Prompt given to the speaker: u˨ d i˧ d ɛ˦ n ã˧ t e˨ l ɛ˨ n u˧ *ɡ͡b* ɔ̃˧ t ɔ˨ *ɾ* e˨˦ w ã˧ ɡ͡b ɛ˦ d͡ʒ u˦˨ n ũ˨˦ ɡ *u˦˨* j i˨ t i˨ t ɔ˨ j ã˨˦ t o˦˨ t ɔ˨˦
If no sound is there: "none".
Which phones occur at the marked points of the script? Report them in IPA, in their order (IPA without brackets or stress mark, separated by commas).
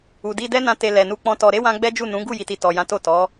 k͡p, ɾ, u˦˨